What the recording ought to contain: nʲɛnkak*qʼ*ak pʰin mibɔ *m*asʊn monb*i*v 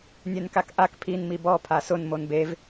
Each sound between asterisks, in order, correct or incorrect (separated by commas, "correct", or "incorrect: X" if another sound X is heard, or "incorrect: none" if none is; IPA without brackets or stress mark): incorrect: ʔ, incorrect: pʰ, incorrect: e